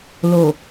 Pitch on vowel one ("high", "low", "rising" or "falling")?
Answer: low